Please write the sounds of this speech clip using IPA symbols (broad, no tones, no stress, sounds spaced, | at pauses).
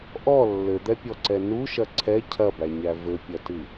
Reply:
ʔ ɔ lː ɘ d̪ ɛ pʲ ɔ ǀ ɛ n u ʃ ɐ ǀʰ ɛ cʰ ɐ b æ ɲ æ v ɘ pʲ ɐ t ɨ